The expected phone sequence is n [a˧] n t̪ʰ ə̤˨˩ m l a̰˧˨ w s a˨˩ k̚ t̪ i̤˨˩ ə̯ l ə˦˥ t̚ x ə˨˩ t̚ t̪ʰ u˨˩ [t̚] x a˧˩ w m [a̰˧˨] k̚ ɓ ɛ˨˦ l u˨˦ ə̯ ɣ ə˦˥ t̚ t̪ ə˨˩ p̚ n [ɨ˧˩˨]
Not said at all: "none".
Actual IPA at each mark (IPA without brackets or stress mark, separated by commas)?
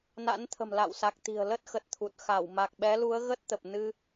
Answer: a̰˧˥, t̚, a˨˩, ɨ˧